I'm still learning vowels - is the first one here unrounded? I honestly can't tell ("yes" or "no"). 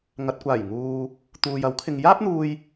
yes